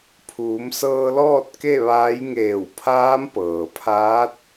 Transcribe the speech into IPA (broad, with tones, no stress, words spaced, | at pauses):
pʰuː˩˧msɤː˧lɔː˥˨t̚ ke˥˨ʋaː˧˥j ŋeː˧˩wpʰaː˧˥mpɤː˩pʰaː˧˥t̚